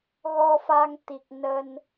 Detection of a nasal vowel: absent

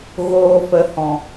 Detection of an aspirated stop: absent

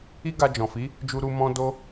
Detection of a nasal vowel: present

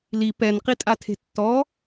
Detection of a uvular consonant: present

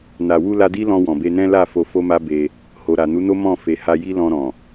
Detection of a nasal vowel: present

